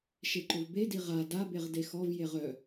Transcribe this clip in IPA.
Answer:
ʃ e ǃ ʊ v b e d i ʁ a d a b e ʁ d e x ɔ v j e ʁ œ

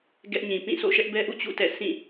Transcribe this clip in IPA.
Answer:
ɡ ɛ˦ ʔ ɲ ĩ˨ p ĩ˦˨ sʰ o̰˦˨ ʃ ɛ˦ ʔ b ɛ˦ ʔ ṵ˦˨ t͡ɕ ṵ˦˨ t ɛ̰˦˨ sʰ ĩ˦˨

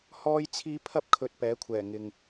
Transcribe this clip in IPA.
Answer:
h ɔː˥ j t͡sʰ iː˥ pʰ ɐ˥ p̚ kʰ ɵ˨ t̚ p ɛː˨˥ kʷʰ ɛː˨˩ ŋ ɪ˨ ŋ

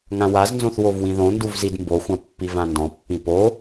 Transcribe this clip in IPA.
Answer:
ŋ ã w a z n z õ θ w o v w ĩ ð õ n d u v z i d m b o xʷ ã pː i v ã n d ɔ̃ pː ĩ p o

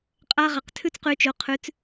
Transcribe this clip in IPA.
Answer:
qʼ a˦ ʁ a˨ q tʰ ʉ˦ t͡s q ʉ˨˦ t͡ʃ o˨ qʰ ʉ˨˦ t͡s

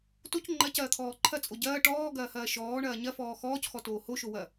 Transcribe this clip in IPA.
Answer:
t o c ŋ͡ǃ ɐ c ɐː t̪ʰ ɔː ǃʰ ɐ t͡sʼ o ɟ ɐː ʈ ɔː ɡ ɐː h ɐː ʃ ɔː ɳ ɐː ɲ ɐ f ɔː x ɔː c x ɔ t oː h o ʃ o w ɐ

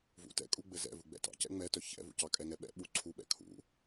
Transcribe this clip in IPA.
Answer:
v ṵ t ɛ̰ kʼ u ɡ͡b ɘ z ɛ̰ v u ɡ͡b ɛ̰ t ɑ̰ c ɛ̰ ŋ͡m ɛ t œ ç ɛ̰ v ṵ c ɑ kʼ ɛ ŋ ɛ ɓ ɛ̰ ɓ u ǀʰ u ɓ ɛ̰ kʰ ṵ

